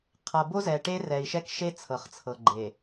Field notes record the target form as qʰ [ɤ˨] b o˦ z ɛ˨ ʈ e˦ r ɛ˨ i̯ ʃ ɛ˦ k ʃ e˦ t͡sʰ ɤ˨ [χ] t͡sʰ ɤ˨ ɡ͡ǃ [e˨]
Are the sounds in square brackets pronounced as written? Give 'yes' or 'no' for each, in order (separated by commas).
yes, yes, yes